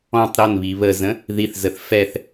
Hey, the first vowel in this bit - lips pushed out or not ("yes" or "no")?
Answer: yes